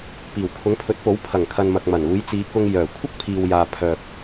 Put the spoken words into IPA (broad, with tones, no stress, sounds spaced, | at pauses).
p iː˨˩ w kʰ ʊ˨˥ ŋ pʰ ɵ˨˥ t̚ p o˨˥ w pʰ ɐ˨˩ ŋ kʰ ɐ˨ n m ɐ˨ k̚ m ɐ˨˩ n uː˨˧ j t͡s iː˨˧ k ʊ˧ ŋ j œː˨˩ kʷʰ ɐ˥ k̚ pʰ iː˨ w j aː˨ pʰ œː˨ p̚